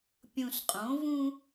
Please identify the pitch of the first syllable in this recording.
low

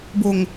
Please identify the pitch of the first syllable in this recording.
low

